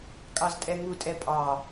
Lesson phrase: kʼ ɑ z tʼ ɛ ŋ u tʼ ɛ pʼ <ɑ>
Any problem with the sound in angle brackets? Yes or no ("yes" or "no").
no